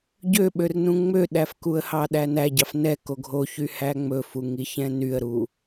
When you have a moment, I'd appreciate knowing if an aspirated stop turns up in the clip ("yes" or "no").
no